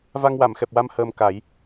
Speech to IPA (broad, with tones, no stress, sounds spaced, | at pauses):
v a˧ ŋ w a˨˩˨ m x ɛ˨˩ p̚ w a˧ m h əː˧ m k a˨˩˦ j